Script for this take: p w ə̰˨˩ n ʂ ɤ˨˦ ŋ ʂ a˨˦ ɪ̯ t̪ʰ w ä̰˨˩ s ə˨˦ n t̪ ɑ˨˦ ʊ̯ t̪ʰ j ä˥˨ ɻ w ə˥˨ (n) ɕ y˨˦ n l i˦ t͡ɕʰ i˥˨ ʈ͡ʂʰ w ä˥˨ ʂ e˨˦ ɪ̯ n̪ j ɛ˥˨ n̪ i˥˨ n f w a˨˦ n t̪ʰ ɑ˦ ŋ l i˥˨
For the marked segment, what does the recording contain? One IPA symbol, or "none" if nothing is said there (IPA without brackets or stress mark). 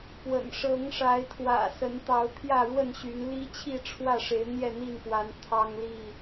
n